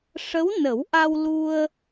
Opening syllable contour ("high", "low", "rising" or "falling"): rising